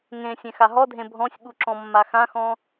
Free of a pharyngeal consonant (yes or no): yes